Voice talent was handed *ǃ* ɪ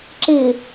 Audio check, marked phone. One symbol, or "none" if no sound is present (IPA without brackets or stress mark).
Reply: ǁ